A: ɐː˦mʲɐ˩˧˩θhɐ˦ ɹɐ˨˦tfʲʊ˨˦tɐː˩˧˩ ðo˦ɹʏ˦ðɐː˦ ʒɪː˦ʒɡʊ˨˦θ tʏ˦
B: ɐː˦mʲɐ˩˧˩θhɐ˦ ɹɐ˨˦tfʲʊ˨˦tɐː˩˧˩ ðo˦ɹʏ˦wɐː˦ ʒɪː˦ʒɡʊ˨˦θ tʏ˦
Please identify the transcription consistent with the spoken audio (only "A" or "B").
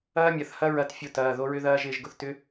A